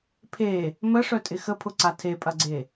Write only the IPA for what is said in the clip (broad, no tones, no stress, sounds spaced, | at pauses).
pʰ e | m ə ʂ œ tʼ ɪ x ə pʰ ʊ ǀ a tʰ e pʼ ɐ ɡ͡ǀ e